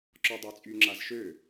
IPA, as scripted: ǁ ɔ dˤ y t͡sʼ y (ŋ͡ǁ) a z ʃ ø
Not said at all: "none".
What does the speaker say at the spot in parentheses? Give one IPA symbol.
ŋ͡ǁ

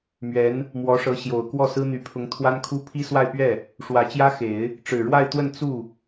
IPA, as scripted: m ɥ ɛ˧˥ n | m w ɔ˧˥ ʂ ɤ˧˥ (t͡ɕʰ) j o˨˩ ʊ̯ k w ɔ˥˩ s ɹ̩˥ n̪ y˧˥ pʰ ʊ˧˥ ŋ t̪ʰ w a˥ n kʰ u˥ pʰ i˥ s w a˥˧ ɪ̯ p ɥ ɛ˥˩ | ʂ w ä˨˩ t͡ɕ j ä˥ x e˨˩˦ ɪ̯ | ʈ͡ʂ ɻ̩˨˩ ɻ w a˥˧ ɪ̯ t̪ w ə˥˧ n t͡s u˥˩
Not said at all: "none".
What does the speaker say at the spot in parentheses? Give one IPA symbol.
ɕ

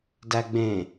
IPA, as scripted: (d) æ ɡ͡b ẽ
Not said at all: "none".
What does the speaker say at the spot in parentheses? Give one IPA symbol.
d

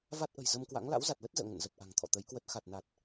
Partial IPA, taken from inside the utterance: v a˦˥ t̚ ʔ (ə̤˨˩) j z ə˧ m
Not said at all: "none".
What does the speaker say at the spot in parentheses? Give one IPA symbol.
ə̤˨˩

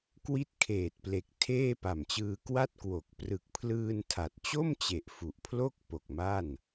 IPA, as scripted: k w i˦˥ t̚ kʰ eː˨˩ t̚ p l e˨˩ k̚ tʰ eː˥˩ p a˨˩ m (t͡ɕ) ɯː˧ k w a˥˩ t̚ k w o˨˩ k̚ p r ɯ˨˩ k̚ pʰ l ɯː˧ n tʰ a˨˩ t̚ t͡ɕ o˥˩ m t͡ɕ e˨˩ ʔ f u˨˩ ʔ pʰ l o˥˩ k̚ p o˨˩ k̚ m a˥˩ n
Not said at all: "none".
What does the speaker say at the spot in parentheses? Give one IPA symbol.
t͡ɕ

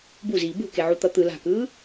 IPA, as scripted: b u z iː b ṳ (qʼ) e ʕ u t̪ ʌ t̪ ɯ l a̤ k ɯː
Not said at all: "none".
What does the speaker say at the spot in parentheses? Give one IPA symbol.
k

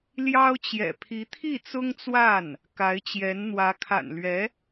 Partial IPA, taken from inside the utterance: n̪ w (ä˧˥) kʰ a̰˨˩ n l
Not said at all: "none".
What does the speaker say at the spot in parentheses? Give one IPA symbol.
ä˧˥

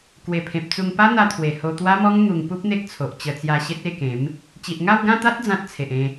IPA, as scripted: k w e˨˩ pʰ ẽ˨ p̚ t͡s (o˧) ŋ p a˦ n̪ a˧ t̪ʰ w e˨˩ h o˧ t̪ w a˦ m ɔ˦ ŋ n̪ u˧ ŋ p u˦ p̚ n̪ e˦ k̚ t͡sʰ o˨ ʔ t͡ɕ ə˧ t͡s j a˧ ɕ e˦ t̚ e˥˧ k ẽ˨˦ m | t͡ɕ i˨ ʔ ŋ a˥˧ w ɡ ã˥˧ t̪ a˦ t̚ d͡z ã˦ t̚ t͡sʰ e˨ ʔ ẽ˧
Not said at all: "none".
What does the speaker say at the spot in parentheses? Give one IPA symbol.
u˧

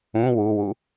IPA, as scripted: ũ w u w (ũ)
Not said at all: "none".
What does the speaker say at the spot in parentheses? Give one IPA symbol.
u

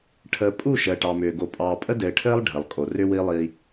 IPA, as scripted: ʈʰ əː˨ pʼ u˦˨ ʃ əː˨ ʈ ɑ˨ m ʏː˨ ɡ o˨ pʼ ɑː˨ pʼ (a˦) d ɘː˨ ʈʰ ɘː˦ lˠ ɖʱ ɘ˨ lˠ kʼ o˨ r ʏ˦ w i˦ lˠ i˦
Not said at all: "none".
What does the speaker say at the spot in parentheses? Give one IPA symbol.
ə˦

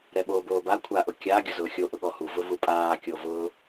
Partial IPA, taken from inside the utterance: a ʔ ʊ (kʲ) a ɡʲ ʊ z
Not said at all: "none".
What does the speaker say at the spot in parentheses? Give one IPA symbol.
kʲ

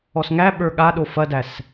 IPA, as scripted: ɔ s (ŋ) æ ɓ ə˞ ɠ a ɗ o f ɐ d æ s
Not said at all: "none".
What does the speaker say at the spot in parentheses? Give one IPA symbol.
ŋ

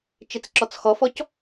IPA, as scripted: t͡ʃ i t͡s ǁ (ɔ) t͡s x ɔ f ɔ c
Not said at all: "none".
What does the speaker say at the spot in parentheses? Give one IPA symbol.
ɔ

